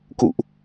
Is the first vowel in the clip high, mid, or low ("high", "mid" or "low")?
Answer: high